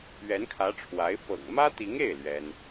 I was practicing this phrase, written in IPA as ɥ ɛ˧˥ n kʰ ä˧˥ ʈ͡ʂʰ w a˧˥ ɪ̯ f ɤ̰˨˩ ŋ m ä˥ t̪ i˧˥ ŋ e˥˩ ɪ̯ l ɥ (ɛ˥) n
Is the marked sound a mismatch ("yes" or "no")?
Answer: no